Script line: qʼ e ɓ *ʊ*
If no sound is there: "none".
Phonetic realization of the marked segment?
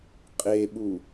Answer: u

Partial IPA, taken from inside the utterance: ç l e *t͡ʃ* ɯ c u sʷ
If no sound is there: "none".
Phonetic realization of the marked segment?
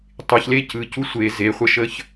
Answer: c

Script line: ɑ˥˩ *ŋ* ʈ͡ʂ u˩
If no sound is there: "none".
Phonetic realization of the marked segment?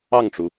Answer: ŋ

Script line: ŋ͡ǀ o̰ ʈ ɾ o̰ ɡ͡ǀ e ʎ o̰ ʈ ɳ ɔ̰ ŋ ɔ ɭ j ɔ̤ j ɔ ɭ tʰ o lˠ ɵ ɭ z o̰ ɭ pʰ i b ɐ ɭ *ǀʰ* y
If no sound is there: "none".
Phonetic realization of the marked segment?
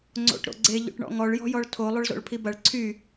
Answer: ǀʰ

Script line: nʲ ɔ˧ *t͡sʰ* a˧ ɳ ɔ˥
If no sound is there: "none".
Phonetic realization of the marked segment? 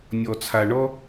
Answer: t͡sʰ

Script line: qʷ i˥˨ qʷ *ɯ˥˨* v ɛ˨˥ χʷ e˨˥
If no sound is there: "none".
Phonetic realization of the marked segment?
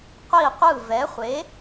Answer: ɯ˥˨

